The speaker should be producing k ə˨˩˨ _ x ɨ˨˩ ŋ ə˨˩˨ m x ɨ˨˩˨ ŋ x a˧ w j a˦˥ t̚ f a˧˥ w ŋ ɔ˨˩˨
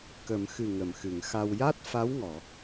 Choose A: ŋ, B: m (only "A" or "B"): B